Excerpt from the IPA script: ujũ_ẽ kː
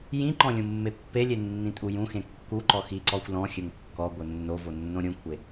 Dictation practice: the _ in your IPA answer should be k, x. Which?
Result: x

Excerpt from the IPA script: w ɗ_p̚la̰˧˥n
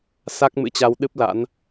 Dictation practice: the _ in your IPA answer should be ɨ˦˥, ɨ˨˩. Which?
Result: ɨ˦˥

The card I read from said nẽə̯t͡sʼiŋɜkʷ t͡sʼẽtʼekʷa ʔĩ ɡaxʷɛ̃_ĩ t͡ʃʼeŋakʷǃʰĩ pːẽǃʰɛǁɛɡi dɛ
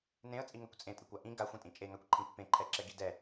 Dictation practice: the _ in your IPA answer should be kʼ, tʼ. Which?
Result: tʼ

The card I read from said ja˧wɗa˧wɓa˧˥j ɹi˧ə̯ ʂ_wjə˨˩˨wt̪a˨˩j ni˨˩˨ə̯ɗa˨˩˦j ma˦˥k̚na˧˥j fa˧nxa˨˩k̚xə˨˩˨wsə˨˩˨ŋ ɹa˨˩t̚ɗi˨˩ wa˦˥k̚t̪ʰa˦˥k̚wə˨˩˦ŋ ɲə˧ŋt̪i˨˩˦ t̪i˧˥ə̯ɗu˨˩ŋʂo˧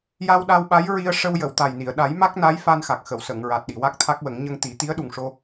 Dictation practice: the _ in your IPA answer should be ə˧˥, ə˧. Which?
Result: ə˧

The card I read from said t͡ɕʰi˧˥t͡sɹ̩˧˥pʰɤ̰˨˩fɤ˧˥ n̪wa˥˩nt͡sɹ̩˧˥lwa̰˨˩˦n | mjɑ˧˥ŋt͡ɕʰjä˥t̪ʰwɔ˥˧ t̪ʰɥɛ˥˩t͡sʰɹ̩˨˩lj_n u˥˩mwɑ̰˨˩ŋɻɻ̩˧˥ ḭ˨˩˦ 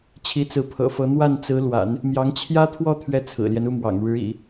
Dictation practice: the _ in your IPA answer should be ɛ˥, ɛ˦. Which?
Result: ɛ˦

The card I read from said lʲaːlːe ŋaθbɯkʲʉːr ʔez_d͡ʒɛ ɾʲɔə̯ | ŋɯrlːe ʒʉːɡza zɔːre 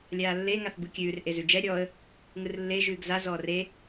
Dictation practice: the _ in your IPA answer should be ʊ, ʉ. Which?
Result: ʉ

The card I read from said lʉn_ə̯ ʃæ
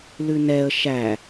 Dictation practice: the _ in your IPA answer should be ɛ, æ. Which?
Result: ɛ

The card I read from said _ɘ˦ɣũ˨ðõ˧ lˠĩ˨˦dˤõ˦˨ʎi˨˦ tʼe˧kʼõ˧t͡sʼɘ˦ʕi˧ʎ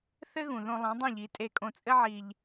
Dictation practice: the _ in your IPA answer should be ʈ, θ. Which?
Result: θ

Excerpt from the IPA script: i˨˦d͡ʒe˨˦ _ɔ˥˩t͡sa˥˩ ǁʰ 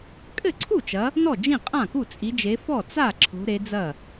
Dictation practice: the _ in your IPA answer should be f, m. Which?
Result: f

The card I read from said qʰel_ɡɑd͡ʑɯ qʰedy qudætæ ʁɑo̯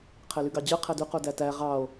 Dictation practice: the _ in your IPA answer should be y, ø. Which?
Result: y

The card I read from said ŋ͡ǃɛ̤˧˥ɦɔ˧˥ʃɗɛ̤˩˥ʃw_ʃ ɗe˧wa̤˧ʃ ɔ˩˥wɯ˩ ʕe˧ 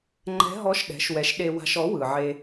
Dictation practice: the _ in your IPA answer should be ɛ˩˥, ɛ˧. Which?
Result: ɛ˩˥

